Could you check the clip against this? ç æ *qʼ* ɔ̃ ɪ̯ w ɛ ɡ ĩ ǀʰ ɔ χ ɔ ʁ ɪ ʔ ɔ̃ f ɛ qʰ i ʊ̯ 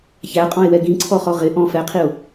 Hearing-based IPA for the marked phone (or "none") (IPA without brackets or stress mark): qʼ